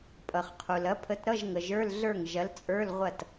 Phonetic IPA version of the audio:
pʼ ʌ˩ χ qʰ u˩ l ɐ˨˥ pʰ ə˨˥ t ɾ ʌ˧˥˧ ʒ ŋ ə˩ ʒ ə˞˧˥˧ l ɮ ə˞˥˩ ŋ ʒ ɐ˨˥ l t͡sʼ ə˞˧˥˧ l ʁʷ ɐ˥˩ t

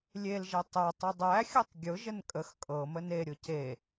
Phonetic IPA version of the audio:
lʲ e l ʒ e tˤ ɛ tˤ ə dˤ æ xʲ ʊ tˤ ɡʲ ʊ ʒ ə n kʼ ə x kʼ ɤ m ə n e ɾʲ ʊ c e

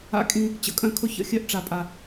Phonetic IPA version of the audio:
a̰˧ kʼ ĩ˧ | t͡ɕ ə̰˧ kʼ œ̃˦ kʰ ʊ˦ ç ə̰˧ xʲ œ˦ ʔ ʈ͡ʂ a˧ pʼ a˧

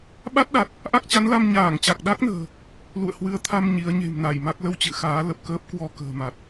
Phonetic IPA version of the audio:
ɓ a˦˥ t̚ ɗ a˨˩ t̚ | ʔ a˦˥ k̚ t͡ɕ a˨˦ n l a˧ m ɲ aː˧˩ ŋ t͡ɕ a˨˩ k̚ ɗ a˦˥ k̚ n ə̤ː˨˩ | l ṵ˧˨ ə̯ h w ɨ˨˦ ə̯ t̪ʰ a˧ m ɲ i˨˦ ə̯ ɲ e̤˨˩ m n a˧˩ j m a˦˥ k̚ l ə˧ w t͡ɕ ɨ̰˧˨ x aː˨˦ l ə˨˩ p̚ k əː˦˥ p̚ k w ɔ˧ k ə̤ː˨˩ m a˨˩ t̚

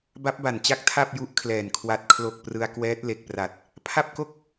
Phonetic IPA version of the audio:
b a˦˥ p̚ b a˨˩ n t͡ɕ a˦˥ k̚ tʰ a˥˩ p̚ j u˦˥ ʔ kʰ l ɛː˨˩ n kʰ w a˨˩ t̚ kʰ l o˨˩ k̚ p r ɯ˧ a̯ k w ɛː˦˥ t̚ l e˨˩ k̚ p r a˨˩ t̚ | pʰ a˥˩ p̚ k o˥˩ k̚

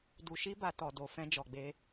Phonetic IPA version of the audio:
d u˧ ʃ i˦ b a˧ t ɔ˨ d o˨ f ɛ̃˧ d͡ʒ ɔ˨ ɡ͡b e˧

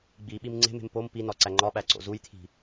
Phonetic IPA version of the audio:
ɡ͡b i ɓ i m ŋ͡ǀ e̤ m e̤ m p o m p i n ɒ ǀ æ ŋ͡ǃ ɒ ɓ æ ǀ o̰ z u j t̪ʰ i̤

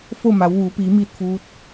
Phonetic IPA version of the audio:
f o˥˨ m a˩˧ w ʋ uː˩˧ p iː˩˧ m iː˥˨ t̚ f uː˧˥ t̚

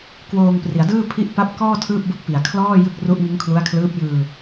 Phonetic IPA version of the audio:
k w oː˧ ŋ p r i˩˦ a̯ d ɯː˥˩ pʰ i˦˥ ʔ p a˦˥ p̚ k ɔː˥˩ tʰ ɯː˥˩ p̚ b ɯ˥˩ k̚ p i˨˩ a̯ kʰ l ɔː˥˩ j ɯ˥˩ k̚ r u˦˥ ʔ ŋ ɯ˦˥ ŋ kʰ l u˦˥ a̯ kʰ l ɯː˦˥ p̚ j ɯː˧

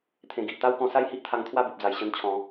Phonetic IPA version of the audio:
t̪ʰ ẽ˨˩ ɡ i˨ ʔ t̪ a˦ w k ɔ̃˧ s a˥˧ j h i˦ ʔ t̪ʰ a˧ ŋ t̪ʰ w a˥˧ b u˨ p̚ d͡z a˨˩ j ɕ ə˧ n t͡ɕʰ ɔ̃˨˦

